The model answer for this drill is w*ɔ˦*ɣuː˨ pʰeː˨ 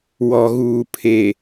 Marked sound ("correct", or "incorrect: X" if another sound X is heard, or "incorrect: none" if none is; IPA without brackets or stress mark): incorrect: ɔ˨